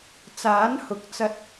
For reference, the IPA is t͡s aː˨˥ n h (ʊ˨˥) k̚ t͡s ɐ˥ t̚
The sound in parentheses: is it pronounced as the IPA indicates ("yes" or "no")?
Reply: yes